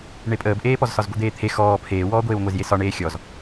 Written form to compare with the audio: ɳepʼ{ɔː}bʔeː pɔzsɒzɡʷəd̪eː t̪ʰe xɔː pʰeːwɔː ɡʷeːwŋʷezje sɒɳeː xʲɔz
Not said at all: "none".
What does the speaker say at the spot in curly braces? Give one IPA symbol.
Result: əː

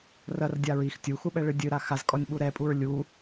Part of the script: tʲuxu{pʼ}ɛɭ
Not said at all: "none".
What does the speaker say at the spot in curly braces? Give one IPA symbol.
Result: ɓ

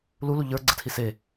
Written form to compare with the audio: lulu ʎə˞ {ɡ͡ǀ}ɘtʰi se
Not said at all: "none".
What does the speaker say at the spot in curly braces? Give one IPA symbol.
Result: ɡ͡ǀ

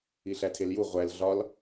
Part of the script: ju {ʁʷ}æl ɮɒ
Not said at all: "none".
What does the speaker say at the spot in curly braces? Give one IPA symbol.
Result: ʁʷ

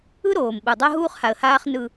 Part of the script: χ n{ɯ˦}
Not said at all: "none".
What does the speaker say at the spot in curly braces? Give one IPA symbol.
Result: ɯ˦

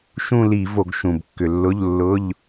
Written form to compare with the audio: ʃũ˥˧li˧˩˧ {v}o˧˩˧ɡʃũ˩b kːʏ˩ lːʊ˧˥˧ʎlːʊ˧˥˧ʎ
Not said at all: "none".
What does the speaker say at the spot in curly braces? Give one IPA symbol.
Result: v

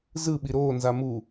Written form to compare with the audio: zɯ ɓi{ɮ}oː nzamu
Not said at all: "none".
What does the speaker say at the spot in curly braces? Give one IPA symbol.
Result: ɾ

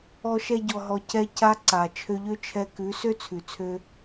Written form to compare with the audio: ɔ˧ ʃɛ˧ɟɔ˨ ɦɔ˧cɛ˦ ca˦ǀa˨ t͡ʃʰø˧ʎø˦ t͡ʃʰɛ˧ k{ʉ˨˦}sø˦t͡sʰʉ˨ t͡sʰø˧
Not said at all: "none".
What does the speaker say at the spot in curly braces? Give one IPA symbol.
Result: ʉ˨˦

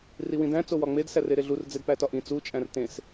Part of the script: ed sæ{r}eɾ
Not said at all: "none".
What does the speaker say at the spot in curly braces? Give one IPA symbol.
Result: r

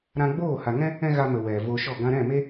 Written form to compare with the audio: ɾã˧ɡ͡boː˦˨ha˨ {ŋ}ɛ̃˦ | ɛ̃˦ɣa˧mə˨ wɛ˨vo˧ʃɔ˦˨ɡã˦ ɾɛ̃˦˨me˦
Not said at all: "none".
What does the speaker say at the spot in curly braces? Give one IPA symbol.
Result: ŋ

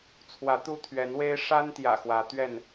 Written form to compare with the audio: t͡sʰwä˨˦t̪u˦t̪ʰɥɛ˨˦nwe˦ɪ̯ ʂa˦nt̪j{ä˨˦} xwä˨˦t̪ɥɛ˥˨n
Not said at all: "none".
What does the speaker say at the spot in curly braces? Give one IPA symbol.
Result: ä̰˨˩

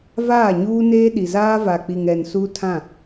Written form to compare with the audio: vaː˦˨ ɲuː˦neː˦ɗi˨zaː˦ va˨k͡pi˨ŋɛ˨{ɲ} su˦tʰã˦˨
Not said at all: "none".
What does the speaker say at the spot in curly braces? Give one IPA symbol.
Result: n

